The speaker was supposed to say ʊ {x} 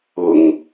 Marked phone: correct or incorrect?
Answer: incorrect